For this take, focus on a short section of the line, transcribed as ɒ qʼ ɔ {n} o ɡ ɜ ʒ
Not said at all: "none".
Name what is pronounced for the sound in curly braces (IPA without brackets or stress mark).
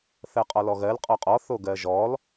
θ